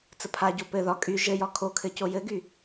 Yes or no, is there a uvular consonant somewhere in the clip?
no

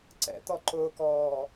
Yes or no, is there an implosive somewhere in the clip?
no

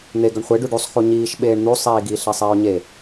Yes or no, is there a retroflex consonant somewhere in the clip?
yes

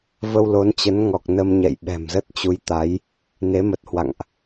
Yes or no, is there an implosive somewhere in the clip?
yes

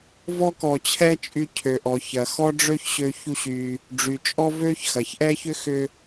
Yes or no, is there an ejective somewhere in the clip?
yes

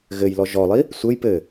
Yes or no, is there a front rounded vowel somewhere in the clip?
no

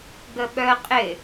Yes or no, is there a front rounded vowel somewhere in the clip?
yes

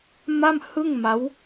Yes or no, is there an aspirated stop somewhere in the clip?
no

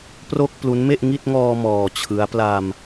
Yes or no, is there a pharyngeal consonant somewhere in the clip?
no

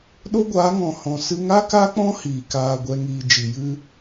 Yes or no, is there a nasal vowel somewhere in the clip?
yes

